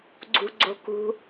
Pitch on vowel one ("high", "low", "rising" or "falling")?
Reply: low